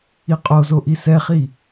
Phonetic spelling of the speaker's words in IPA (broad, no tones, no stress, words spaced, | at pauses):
iqʼozo ʔisɛχi